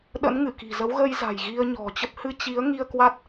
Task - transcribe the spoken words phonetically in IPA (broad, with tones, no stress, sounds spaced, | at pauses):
ɗ ə̰˧˥ n ŋ ɨ˧˩ k i̤˨˩ z ə˨˦ w ɣ ə˧ j z a̤˨˩ j ɣ i˧ ə̯ ɲ ɔ̤˨˩ t͡ɕ ə˦˥ p̚ h ɨ˧ t͡ɕ i˨˦ ə̯ ŋ i˧ ə̯ k w a˦˥ t̚